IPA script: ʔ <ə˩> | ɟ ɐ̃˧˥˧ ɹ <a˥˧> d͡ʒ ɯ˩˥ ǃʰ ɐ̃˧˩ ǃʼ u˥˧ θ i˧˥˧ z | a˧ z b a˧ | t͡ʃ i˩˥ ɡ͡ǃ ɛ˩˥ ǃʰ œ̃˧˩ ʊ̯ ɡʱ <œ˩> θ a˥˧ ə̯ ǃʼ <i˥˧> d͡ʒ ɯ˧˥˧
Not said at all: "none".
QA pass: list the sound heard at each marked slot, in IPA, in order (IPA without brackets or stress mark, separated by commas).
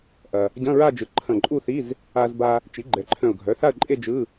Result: ɐ˩, a˥˧, œ˩˥, e˥˧